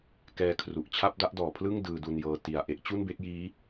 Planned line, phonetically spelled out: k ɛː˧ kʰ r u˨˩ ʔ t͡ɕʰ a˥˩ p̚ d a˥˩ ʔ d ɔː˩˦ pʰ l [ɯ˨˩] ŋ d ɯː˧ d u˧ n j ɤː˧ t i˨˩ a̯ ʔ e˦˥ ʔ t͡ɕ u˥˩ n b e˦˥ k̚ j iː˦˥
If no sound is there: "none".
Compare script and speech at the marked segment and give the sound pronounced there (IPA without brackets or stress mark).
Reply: ɯ˥˩